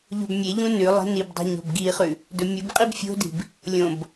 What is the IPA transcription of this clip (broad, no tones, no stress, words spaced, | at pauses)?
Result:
ʎo̤bmʲeʎũ nʉ lˠe̤nibdˤi̤ ɲo̤bɡiχʉ | dɵmʲubqʼib fʲo̤di̤b | lʲõb